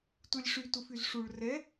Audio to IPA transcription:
tulʲʂy tufyzʂuɭ rɛ

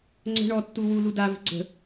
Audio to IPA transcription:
ŋ͡ǀə̤ ɳɔtːu wulu davə̤ ɡ͡ǀə̤

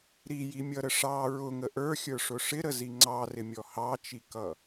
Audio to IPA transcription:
ɾijimʲʌɾə ʂɑ ɹʊŋə ʔə˞xʲə˞ʂʊ ʂɪɾəzi ŋ͡ǀɑrɪmʲɔ hɑt͡ʃikʌ

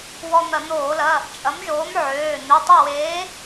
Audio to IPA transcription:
wɔ˧n̪ɐ˧˩˧n̪oː˧˩˧lɐ˩˧˩ | t͡ʃʼɐ˨˥mʒoː˨˥m ʕøː˩˧˩ n̪ø˩˧˩tˤɐ˥˨weː˨˥

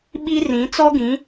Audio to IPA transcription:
ɓi˦rĩ˨˦ t͡sɔ˦ɡĩ˨˦

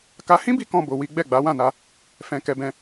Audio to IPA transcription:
ka˦ hĩ˦bi˧ kɔ̃˦bo˧wi˦ ɡ͡bɛ˦˨ɡ͡ba˨˦wã˦˨na˧ | fɛ̃˧kɛ˧bɛ̃˧

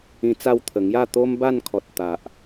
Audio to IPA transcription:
ĩ˧t͡sa˥˧wt̪ʰə˨˩ ŋja˥˧ t̪o˦mba˥˧n kʰɔ˨t̚t̪a˨ʔ

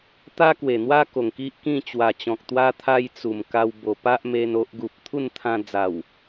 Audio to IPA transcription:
t̪a˦kwe˨˩n̪wa˦ ko˨˩ŋki˦ʔkĩ˥˧ t͡ɕwa˨˩t͡ɕɔ̃˨k̚t̪wa˧t̪ʰa˧j t͡su˨˩mka˧w bo˨˩pa˦ʔ me˧no˦ʔɡu˨p̚ t̪ʰu˥˧nt̪ʰã˧d͡za˨˩w

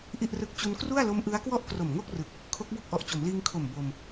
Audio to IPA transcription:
ʔi˥˩ʔrɯ˦˥k̚ t͡ɕu˧nkru˥˩a̯lo˦˥mʔɯ˦˥a̯ kwɔ˥˩ʔkro˨˩mŋo˥˩k̚ rɯ˨˩k̚ | kʰo˦˥k̚bo˥˩k̚ʔɔ˨˩ʔ t͡ɕo˩˦mliː˧ŋkʰo˨˩m bo˧m

